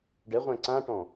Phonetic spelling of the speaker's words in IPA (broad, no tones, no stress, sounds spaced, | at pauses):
ɖ ɛ ʁʷ æ̃ ǀ ã ʈ ɔ̃